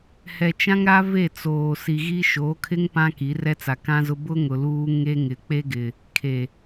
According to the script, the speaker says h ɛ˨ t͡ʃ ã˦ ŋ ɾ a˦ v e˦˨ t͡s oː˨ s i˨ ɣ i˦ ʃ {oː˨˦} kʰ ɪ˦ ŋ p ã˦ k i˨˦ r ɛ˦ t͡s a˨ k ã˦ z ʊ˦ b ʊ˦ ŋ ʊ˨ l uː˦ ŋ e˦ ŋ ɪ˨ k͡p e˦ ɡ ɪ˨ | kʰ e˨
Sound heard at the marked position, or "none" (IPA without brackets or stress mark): oː˨˦